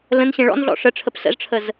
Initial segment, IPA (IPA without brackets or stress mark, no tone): l